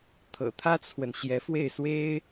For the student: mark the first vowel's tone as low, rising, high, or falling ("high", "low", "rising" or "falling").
low